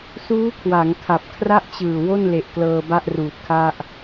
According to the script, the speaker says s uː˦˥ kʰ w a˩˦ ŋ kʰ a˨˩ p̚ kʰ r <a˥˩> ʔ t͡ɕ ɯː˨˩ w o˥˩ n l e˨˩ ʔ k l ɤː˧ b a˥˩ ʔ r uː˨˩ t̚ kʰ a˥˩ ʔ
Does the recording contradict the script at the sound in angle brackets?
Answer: no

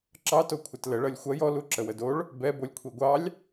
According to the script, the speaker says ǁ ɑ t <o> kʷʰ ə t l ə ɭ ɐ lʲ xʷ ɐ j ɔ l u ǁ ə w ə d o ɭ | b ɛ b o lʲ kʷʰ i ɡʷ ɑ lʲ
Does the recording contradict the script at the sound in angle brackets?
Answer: no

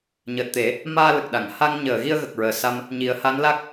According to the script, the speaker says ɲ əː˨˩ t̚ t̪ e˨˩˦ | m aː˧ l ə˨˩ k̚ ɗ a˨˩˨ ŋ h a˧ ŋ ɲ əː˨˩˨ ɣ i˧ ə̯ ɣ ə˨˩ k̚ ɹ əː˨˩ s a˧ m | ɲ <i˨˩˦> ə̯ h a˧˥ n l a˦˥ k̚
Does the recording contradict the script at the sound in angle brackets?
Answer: no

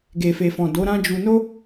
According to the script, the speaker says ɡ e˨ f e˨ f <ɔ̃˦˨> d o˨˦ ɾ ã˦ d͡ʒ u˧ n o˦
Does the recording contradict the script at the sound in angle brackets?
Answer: yes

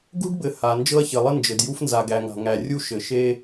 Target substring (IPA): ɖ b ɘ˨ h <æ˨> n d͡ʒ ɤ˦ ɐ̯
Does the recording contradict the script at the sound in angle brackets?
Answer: yes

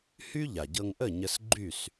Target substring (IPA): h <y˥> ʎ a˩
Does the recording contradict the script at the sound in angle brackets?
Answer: no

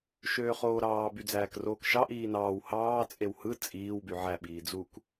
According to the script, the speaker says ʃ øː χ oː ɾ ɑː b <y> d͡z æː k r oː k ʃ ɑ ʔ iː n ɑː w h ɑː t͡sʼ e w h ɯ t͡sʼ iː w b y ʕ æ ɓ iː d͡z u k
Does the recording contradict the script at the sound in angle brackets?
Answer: no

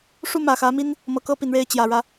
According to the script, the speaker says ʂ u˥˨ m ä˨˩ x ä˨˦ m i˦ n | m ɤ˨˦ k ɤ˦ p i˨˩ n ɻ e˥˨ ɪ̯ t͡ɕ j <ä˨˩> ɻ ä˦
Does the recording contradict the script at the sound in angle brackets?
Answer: no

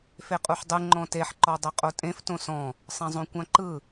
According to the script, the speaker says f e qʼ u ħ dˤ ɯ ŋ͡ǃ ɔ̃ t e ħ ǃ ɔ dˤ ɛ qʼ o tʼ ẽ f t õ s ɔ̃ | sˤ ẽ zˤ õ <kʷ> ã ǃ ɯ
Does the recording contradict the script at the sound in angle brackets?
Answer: no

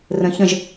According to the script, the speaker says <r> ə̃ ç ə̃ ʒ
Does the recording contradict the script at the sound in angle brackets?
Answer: no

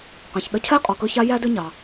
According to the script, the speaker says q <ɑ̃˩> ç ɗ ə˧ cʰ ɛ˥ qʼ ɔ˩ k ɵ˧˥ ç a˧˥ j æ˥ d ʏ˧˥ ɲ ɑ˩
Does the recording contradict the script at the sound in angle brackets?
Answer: no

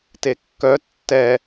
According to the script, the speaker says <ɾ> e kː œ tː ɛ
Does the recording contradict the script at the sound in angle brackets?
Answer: yes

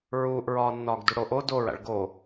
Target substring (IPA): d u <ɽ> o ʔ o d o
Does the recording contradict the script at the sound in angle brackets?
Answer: no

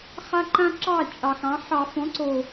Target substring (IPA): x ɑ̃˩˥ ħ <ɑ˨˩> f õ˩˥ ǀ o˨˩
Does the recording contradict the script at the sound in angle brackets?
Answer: yes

